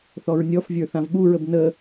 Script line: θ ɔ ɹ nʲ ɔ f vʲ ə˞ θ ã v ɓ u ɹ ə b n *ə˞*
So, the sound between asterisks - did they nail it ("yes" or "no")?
no